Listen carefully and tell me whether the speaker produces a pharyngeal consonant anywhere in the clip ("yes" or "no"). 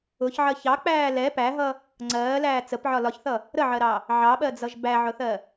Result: yes